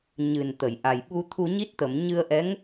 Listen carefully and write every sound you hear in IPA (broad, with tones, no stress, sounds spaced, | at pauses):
ɲ ɨ˨˩ n t̪ ə˨˩˨ j ʔ a˨˩ j ɓ u˧ t̪ʰ u˧ ɲ i˦˥ t̚ t̪ ə˨˩˨ m ɲ ɨ˧ ə̯ ʔ ɛ˧˥ ŋ